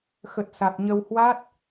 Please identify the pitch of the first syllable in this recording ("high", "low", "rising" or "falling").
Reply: low